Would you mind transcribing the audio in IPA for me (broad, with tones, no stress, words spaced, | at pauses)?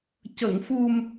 cə˨˩˨ŋ fu˨˩m